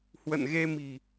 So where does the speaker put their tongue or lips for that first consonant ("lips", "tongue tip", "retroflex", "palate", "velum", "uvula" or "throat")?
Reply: throat